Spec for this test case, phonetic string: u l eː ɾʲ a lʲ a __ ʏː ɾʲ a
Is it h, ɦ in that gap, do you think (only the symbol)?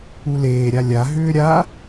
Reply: ɦ